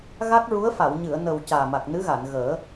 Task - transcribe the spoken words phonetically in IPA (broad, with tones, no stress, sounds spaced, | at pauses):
ɣ a˦˥ k̚ ɹ u˧˥ ə̯ f a˨˩˨ w ɲ ɨ˨˩˨ ə̯ n ə˨˩ w c aː˨˩ m a˨˩ k̚ n ɨ˧˥ ɣ a˨˩˨ n ɣ əː˨˩˦